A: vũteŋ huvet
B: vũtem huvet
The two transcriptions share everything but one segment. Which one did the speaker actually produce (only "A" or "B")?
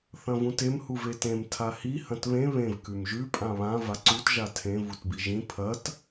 B